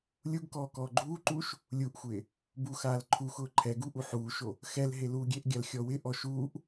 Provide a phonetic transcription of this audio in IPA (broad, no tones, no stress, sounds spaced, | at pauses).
lʲ u ɡ k ɔː k ɔː ɡ͡ǃ uː ǃ uː ʃ | lʲ u ʔ xʷ ɪː | b u x aː l ǃʰ u x ʊː ǃʰ ɛ ɡ u ʔ u ħ uː ʃ o | x ɛ l ɦ e l uː ɡʲ e ʔ ɡʲ a l xʲ ɔ w ɪ ʔ ɔ ʃ uː ʔ